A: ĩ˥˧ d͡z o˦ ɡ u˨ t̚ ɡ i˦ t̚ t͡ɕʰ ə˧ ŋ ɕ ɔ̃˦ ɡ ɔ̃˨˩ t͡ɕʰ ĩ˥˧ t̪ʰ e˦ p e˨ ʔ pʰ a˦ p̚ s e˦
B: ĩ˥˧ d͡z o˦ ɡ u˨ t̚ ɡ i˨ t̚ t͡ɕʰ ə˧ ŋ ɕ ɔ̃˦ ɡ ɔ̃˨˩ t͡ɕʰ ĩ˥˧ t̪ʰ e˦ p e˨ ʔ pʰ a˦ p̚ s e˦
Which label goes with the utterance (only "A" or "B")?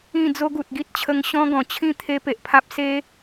A